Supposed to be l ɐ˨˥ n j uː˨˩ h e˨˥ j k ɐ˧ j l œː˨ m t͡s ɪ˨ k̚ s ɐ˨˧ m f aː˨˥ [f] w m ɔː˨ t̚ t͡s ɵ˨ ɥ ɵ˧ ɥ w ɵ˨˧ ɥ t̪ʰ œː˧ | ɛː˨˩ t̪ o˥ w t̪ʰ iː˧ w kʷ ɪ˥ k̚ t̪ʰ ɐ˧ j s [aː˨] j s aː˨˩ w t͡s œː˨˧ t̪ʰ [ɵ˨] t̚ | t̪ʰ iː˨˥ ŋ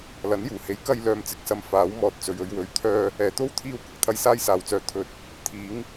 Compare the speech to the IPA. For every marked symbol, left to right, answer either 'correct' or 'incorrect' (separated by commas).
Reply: incorrect, incorrect, correct